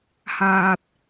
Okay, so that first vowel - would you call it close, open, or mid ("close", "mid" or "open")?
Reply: open